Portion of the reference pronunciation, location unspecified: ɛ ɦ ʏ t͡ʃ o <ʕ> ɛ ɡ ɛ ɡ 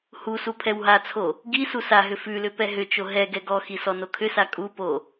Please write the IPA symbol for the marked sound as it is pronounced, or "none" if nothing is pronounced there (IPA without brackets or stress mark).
ɦ